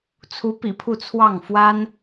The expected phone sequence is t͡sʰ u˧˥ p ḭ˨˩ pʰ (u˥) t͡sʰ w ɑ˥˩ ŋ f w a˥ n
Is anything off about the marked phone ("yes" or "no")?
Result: yes